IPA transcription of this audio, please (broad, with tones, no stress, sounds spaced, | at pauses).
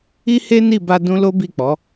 i˦ h e˦ n i˦˨ b a˧ d ũ˦ l o˦ b i˦˨ k͡p ɔ˨˦